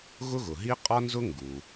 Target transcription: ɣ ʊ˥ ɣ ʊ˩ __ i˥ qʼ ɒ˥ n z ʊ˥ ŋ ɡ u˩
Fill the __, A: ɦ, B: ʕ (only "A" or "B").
A